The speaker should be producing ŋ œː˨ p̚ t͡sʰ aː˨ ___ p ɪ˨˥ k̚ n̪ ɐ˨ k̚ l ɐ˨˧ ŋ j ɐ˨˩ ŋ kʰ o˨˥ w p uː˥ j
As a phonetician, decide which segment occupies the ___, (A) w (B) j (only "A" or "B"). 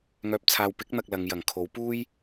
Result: A